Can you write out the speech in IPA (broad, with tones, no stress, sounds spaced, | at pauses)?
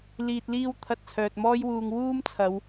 l iː˨ t̚ l iː˧ w t̪ʰ ɐ˧ t̚ t͡sʰ œː˨ t̚ m ɔː˥ j w uː˧ ŋ w uː˥ m t͡sʰ ɐ˨˧ w